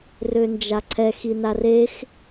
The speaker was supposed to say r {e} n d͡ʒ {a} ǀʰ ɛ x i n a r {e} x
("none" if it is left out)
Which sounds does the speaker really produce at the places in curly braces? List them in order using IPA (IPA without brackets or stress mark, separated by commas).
ø, a, e